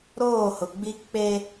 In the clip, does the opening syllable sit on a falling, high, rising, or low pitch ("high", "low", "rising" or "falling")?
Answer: falling